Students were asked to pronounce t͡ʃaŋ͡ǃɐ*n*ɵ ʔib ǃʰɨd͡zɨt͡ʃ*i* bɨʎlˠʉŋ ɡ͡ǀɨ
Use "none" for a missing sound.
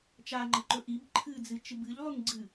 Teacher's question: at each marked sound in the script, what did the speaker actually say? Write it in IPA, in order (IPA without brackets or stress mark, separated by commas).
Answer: ǃ, ɨ